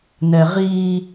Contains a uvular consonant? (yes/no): yes